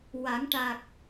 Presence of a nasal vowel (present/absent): absent